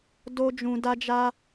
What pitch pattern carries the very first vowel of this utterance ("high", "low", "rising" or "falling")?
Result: high